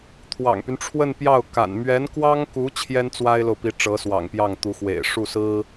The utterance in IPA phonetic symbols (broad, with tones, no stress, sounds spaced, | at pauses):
t̪ʰ w ɑ̰˨˩ ŋ p y˦ n ʈ͡ʂʰ w ə˥˧ n p j ɑ˥˩ ʊ̯ k a̰˨˩ n m ɥ ɛ˧˥ n k w ɑ˥ ŋ k u˧˥ t͡ɕʰ j ɛ˥ n t͡s w a˥ ɪ̯ l o˨ ʊ̯ p i˧˥ ʈ͡ʂ ɤ˧˥ s w ɑ̰˨˩ ŋ p j ɑ˥˩ ŋ t̪ u˧˥ x w ḛ˨˩ ɪ̯ ʂ u˥˩ s ɹ̩˥